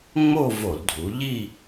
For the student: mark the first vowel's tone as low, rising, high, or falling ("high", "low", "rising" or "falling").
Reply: falling